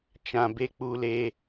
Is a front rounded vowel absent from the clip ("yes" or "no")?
yes